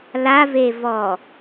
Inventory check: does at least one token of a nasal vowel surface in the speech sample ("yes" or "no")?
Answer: no